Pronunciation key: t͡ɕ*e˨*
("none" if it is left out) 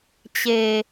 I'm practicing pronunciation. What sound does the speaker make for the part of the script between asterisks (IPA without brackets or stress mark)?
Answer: e˨